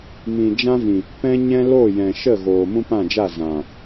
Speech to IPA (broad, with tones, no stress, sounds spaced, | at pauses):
m ĩ˨ d͡ʒ ã˦ v ĩ˨ | p ɛ̃˦ ɲ ɛ̃˦ l o˦˨ j ɛ̃˨ ʃ ə˦˨ ɣ oː˨ m ũ˦ p ã˦˨ d͡ʒ a˦˨ z ã˨